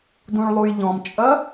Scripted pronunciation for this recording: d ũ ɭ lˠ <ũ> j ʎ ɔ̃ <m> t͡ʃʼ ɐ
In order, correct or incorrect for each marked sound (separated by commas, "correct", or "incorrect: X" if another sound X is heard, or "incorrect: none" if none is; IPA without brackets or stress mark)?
incorrect: u, correct